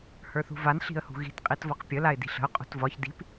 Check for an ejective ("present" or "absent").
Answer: present